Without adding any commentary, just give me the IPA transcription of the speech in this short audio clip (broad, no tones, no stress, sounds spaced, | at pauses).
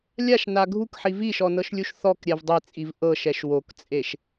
lʲ a ʃ n a ɡʱ u k ħ i v i ʃ ɔ n ɤ ʃ lʲ u ʃ θ ɔ k ɾʲ ɛ v dˤ e t͡sʼ i v ʔ ɤ ʃ ɛ ʃ w o k t͡sʼ e ʃ